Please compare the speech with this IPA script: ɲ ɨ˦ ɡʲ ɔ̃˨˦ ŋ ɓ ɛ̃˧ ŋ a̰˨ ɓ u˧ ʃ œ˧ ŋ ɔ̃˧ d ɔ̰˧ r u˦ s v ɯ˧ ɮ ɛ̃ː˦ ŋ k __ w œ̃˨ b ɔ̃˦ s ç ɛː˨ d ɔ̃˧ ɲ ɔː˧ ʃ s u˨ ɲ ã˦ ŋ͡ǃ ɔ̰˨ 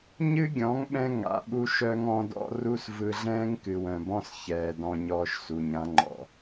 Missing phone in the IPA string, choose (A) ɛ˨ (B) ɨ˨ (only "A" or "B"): B